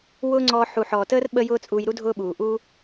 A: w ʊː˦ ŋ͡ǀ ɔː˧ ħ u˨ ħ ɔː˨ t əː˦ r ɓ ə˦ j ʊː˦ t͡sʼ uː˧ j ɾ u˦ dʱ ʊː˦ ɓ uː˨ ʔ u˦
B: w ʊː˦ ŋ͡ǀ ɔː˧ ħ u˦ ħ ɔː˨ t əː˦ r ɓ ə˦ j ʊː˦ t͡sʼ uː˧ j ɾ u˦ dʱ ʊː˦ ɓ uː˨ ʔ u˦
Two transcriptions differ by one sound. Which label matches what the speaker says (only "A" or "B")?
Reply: A